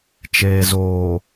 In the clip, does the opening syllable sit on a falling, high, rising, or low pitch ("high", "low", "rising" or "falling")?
low